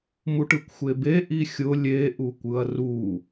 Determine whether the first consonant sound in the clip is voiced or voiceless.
voiced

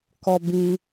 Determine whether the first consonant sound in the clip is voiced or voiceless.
voiceless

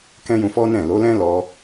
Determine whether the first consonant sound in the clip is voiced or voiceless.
voiceless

